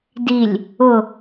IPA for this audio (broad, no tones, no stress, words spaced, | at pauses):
dilʲ | ʊ